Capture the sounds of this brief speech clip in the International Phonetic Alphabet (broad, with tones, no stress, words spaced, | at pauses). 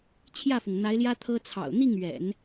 t͡ɕʰjä˥˩fʊ˩ŋn̪a˧˥ɪ̯ljä˥ t̪ʰɤ˥t͡sʰɑ̰˨˩ʊ̯ n̪i˥˩ŋɥɛ̰˨˩˦n